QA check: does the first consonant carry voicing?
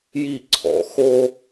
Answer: yes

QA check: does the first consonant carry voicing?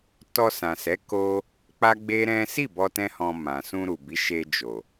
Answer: no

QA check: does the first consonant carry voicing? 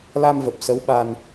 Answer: yes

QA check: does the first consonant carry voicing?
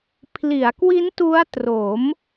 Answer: no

